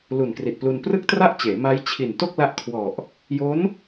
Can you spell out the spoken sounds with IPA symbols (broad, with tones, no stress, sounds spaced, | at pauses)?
l u˨˩ n k r i˨˩ t̚ p l u˧ n p r ɯ˥˩ k̚ t r a˥˩ ʔ t͡ɕ eː˩˦ m a˦˥ j t͡ɕʰ i˨˩ n t o˥˩ k̚ l a˦˥ ʔ kʰ w ɔ˨˩ ʔ | j o˦˥ n